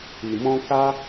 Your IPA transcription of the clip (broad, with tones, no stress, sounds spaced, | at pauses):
i˨ m ɔ̃˧ k a˦